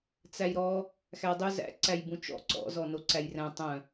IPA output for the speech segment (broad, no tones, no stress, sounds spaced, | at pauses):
t͡s æ j ɾ ɔ | x æ dˤ ʏ z æ̰ ǀ æ j b ũ t͡ʃ ɔ̰ ǀ ɔ̰ z ɔ n o ǀ æ j r æ̃ tˤ œ̃